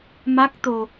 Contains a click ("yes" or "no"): no